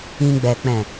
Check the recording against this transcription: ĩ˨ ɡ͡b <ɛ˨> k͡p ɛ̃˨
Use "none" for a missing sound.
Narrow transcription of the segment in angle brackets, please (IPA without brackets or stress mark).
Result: ɛ˨